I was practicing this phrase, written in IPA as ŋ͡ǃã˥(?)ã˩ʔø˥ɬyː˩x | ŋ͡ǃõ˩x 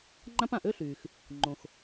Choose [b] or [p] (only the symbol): p